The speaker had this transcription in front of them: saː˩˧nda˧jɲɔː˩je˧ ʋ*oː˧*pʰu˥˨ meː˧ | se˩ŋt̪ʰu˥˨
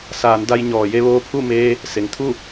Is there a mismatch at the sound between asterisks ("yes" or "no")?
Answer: no